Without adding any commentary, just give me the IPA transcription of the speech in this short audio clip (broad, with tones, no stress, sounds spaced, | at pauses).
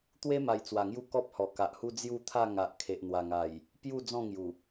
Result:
t̪ w e˦ m a˨˩ j t͡s w a˨˩ ŋ j u˥˧ k ɔ˦ p̚ h ɔ˨˩ k a˨ ʔ h u˦ d͡z j u˥˧ t̪ʰ a˥˧ ŋ a˨ ʔ kʰ e˨ ʔ n̪ w a˨˩ ŋ a˨˩ j | p j u˥˧ d͡z ɔ̃˥˧ ŋ j u˨˩